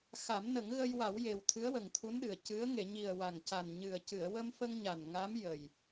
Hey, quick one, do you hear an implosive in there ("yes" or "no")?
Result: yes